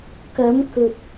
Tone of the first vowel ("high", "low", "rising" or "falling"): rising